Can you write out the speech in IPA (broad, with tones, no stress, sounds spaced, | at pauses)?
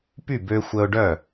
p y˥˩ b ø˧ xʷ ə˧ ʊ̯ ɖ œ˥˩